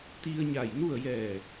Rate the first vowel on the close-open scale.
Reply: close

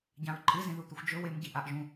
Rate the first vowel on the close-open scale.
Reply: open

